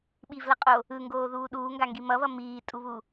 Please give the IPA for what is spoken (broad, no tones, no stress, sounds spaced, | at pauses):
ɓ i v l ʌ qʼ o | ɯ ŋ ɡ oː ð uː ɗ uː ŋ ɡ a ŋ ɡ i m ʌ β ʌ m iː tʼ u β u